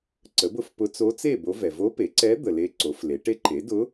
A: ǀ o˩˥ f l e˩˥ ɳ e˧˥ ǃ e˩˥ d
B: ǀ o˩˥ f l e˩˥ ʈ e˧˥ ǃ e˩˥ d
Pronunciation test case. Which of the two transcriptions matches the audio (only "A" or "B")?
B